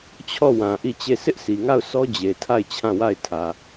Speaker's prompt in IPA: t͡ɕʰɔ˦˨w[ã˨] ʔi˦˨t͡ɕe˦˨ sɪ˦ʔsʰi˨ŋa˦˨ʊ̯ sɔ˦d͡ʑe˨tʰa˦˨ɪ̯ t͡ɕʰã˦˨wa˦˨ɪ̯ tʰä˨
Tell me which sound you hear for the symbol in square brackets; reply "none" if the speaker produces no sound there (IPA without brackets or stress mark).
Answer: ã˨